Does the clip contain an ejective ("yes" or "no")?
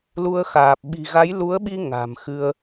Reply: no